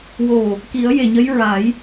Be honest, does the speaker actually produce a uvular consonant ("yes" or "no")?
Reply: no